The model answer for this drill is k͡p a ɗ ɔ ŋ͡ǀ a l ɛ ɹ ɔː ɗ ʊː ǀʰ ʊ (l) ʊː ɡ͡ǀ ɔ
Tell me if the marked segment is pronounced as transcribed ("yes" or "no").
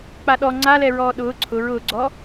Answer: no